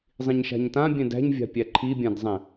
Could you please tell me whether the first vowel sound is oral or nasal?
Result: nasal